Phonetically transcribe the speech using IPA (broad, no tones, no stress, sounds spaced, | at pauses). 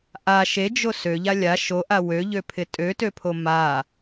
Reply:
ʔ a ʃ e d͡ʒ o s ø ʎ a lʲ a ʃ o ʔ a w ø ʎ ø pʰ ɪ tʼ ø t ø pʰ o m a